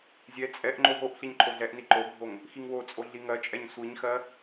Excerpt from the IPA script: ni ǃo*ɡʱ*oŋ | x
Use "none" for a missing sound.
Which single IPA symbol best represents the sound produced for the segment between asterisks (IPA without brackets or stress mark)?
ɡʱ